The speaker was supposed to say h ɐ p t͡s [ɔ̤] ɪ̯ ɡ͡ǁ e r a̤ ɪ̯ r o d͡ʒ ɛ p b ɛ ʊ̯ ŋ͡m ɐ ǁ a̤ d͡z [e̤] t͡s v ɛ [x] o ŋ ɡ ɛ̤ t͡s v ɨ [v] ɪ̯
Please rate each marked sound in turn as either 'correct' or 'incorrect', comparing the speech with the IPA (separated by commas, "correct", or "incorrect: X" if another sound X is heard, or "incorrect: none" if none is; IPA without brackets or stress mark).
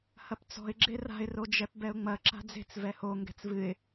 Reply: correct, correct, incorrect: h, incorrect: none